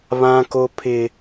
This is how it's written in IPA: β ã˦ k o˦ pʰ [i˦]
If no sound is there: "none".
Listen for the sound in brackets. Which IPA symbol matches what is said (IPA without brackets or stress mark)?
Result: ɪ˦